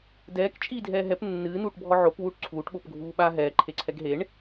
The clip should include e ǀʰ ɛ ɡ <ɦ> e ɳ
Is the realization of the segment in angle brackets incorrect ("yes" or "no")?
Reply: no